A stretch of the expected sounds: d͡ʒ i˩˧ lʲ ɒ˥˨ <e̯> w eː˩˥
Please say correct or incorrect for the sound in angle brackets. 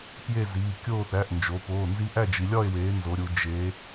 correct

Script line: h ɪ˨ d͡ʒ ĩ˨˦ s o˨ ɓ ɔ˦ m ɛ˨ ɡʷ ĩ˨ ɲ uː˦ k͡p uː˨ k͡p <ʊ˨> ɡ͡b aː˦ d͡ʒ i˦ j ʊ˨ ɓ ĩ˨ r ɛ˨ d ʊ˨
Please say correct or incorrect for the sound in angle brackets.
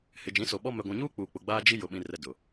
correct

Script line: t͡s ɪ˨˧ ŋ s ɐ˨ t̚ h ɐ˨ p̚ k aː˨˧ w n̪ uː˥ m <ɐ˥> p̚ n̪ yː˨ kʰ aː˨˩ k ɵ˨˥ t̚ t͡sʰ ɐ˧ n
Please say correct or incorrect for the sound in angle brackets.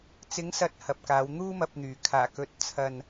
incorrect: ɐ˧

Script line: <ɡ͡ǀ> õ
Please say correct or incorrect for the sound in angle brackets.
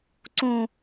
incorrect: ǀ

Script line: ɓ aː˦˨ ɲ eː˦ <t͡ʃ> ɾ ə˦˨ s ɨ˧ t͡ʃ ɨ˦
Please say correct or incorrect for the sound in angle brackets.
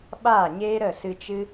incorrect: none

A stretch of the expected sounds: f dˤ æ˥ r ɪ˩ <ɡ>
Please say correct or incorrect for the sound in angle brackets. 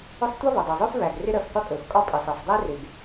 correct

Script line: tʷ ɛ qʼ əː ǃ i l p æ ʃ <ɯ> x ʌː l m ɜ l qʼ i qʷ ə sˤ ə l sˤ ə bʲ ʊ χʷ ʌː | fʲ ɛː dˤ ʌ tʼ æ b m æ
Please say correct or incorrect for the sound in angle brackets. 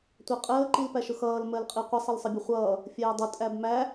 incorrect: ʊ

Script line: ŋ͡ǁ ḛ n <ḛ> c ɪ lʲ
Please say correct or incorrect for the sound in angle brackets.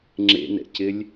incorrect: ɛ̰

